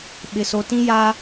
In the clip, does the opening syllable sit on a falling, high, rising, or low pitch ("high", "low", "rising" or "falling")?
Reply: low